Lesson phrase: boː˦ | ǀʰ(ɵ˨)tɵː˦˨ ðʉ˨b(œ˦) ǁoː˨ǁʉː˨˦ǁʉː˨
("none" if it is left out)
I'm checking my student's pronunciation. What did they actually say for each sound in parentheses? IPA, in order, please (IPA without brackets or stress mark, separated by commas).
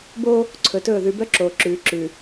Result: ɵ˨, œ˦